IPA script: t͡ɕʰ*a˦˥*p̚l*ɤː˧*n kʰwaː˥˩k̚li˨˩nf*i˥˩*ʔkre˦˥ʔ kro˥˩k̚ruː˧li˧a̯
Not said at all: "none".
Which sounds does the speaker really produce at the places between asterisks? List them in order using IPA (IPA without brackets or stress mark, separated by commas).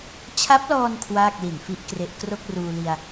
a˦˥, ɔː˧, i˥˩